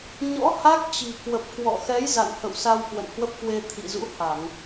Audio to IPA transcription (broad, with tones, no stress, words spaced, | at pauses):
ɲɔ̰˧˥ ha˦˥k̚t͡ɕi̤˨˩ kwə˨˩p̚kwɔ̰˧˨ xɛ˨˦j za̰˧˨nhə̰˧˨wsa˧w kwə̰˧˨nhwə˦˥p̚kwe˧ t̪ʰḭ˧˨zṵ˧˥ha˧˩˨ŋ